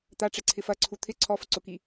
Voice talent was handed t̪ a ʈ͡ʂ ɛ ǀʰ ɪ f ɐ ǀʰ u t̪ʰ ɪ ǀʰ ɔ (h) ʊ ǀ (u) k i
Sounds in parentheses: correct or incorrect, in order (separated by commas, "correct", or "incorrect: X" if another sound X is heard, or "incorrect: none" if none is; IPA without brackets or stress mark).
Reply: incorrect: f, incorrect: ʊ